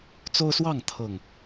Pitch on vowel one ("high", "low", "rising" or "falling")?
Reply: high